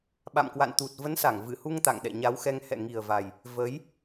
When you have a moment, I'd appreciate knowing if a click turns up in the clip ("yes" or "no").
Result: no